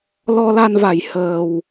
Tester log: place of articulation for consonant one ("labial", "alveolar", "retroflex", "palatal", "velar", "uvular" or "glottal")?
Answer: alveolar